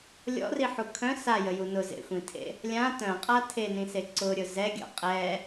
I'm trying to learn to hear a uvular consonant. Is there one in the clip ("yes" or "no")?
yes